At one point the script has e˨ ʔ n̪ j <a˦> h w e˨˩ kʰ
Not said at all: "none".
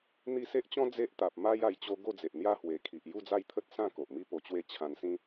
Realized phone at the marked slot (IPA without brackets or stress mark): a˦